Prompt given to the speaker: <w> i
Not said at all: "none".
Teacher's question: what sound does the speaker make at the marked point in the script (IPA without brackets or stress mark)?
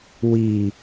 w